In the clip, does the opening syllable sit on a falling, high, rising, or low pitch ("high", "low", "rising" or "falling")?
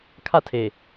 high